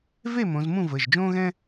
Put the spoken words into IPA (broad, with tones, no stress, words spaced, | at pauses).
ve˥˨ mõ˨˥z mũ˥˨vəː˩˧˩ʒd͡ʒõː˥ɣɛ̃˥